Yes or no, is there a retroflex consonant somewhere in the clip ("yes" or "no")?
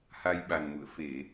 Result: no